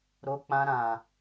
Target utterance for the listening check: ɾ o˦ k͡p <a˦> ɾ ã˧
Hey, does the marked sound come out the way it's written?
no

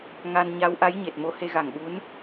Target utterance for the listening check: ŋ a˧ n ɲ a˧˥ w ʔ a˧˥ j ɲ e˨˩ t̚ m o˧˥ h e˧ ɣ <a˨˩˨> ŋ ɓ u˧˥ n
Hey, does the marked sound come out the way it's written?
no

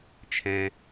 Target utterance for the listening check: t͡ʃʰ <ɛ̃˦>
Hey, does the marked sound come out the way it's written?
yes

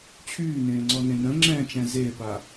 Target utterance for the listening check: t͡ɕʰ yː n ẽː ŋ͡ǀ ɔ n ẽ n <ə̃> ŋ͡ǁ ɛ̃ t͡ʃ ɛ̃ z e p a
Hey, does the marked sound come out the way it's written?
yes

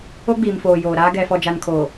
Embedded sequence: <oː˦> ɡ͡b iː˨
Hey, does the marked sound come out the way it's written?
no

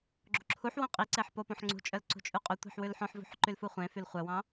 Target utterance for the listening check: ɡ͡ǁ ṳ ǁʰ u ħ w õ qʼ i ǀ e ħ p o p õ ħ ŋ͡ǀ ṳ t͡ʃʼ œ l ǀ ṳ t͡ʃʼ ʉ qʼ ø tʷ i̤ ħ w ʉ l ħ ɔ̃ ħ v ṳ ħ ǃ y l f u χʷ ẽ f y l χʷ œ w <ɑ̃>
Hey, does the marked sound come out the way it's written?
yes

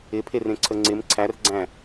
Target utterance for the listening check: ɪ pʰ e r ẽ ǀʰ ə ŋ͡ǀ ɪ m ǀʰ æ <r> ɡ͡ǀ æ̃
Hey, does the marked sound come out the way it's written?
yes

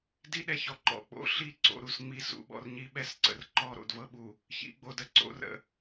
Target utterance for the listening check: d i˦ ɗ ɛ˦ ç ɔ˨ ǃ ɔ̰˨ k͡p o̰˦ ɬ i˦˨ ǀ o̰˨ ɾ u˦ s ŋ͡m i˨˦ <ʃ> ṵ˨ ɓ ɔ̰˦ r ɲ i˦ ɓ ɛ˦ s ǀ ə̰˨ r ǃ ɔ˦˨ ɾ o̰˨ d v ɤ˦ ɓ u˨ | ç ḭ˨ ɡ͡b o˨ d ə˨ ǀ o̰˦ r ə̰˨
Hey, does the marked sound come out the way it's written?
no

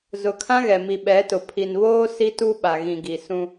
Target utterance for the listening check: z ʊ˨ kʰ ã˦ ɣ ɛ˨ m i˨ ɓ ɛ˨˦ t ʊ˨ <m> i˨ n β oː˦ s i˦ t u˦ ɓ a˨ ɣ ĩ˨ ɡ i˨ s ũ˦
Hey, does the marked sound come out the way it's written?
no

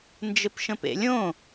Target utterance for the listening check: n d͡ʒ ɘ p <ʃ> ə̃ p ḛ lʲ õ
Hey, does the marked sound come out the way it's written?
yes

